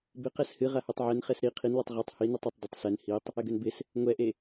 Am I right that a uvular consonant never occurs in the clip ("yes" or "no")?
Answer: no